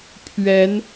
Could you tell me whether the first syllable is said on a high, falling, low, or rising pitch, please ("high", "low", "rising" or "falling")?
rising